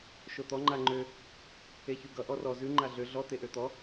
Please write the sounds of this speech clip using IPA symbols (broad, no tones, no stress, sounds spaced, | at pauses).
ʃ o t̪ ɔ ŋ͡ǃ a ŋ͡ǃ ø | e ç ʉ ɡ ʌ ʔ ɔ r ɔ z ʉ ŋ͡ǃ a ɮ ø ɮ ɔ t̪ e ʔ ø t̪ ɔ